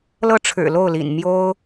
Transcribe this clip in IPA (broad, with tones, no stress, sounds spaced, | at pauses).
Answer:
l ɤ˥˩ ʈ͡ʂʰ ɻ̩˨˩ l o˥˩ ʊ̯ l ḭ˨˩ n m j o˥ ʊ̯